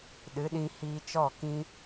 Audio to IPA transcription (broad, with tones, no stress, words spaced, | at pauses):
ɗɨ˨˦ɗĩ˧ hiː˧t͡ʃɔ˦˨kĩ˦